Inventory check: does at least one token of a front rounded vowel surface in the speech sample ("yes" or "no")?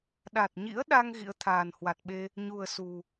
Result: no